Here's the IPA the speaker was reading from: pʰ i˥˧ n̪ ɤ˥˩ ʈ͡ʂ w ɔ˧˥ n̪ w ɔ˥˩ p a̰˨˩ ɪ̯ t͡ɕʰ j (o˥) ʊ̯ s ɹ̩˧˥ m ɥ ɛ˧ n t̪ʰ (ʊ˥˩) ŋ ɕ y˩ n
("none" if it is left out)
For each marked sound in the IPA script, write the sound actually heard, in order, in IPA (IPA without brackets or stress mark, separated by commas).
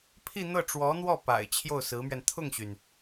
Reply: o˥˩, ʊ˥˩